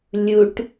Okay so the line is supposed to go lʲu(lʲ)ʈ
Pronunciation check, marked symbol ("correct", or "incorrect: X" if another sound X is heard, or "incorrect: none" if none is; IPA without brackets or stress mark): incorrect: none